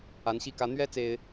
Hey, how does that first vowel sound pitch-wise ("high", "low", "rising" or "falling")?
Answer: rising